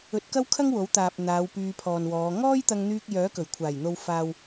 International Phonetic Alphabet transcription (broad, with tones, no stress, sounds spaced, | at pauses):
ɵ˧ t̚ k ɐ˥ w kʰ ɐ˥ ŋ w o˨˥ w t̪ aː˨ p̚ n̪ aː˨˧ w p yː˧ pʰ ɔː˨ n w ɔː˨˧ ŋ ɔː˥ j t̪ ɐ˧ ŋ n̪ yː˧ k̚ j œː˨˥ k ɵ˨˩ ɥ kʷʰ aː˨˩ j n̪ o˨ w f aː˨ w